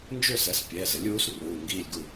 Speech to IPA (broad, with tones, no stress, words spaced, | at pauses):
nd͡ʒø˥˨sɛ˩˥s pʲɛː˩˧˩zɘ˩˥lʲuː˩˥s ruː˩˧˩ŋɡiː˥˨lʲɡu˥˨